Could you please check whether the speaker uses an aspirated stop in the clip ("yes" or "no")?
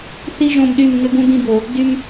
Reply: no